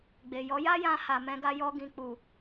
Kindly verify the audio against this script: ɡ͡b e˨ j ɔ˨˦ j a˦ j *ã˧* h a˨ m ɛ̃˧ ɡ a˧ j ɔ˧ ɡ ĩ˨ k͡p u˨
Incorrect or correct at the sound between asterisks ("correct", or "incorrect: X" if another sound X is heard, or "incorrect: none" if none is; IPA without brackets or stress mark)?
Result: correct